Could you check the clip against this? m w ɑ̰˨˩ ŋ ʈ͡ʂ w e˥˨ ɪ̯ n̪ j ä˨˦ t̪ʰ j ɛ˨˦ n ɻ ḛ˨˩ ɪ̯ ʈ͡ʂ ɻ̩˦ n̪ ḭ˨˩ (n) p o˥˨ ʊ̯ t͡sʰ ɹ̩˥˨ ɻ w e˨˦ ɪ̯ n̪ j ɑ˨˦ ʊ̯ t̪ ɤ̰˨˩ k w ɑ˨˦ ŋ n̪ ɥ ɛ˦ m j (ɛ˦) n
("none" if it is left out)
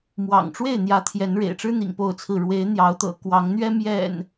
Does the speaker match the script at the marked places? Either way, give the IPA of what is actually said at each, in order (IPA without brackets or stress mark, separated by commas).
ŋ, ɛ̰˨˩